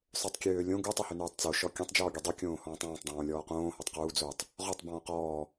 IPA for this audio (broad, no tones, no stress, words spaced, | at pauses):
sˤøtˤkʲøːlʲõ ɡu tˤuhønuːtˤt͡so ʃɔkʲũtˤ d͡ʒɔːɡʲødˤu kʲõːhɔ̃ːtˤɔ̃ːtˤ dˤõːlʲɔːqõː hɔtˤquː d͡zotˤ | ʁɔtˤ bɔ̃ːqɔː